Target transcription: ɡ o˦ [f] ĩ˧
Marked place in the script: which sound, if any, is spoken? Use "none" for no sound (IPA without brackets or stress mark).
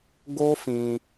f